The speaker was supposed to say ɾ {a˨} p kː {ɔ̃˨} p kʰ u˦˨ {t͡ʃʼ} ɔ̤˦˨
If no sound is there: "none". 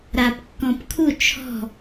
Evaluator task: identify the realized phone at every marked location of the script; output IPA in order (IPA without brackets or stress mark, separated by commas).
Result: a˨, ɔ̃˨, t͡ʃʰ